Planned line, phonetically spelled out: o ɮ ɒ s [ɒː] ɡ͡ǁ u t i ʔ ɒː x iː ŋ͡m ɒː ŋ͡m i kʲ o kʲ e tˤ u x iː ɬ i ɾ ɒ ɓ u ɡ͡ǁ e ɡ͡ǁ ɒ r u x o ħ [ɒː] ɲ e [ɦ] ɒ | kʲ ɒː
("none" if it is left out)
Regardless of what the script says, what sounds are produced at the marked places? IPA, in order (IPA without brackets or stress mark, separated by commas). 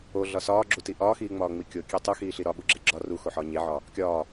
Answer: ɒː, ɒː, ʕ